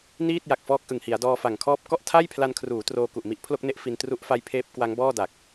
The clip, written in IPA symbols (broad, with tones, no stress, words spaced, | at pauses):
niː˥˩t̚ ja˨˩k̚fɔː˦˥k̚ʔɯ˨˩ŋhi˩˦a̯ dɔː˧fa˨˩ŋkʰɔː˦˥p̚ kɔ˦˥ʔ tʰa˥˩jpʰla˧nkʰruː˩˦ troː˧ku˨˩ʔmi˦˥ʔ pʰlo˥˩k̚ne˦˥ʔ fi˧ntru˦˥ʔ fa˦˥jpʰeː˦˥p̚kwa˦˥ŋ bɔː˥˩da˨˩k̚